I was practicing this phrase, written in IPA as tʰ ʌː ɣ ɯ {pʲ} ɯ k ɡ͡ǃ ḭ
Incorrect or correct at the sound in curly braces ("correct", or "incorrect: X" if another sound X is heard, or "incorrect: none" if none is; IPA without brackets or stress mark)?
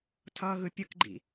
correct